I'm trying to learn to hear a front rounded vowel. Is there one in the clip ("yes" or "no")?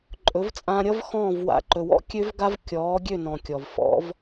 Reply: yes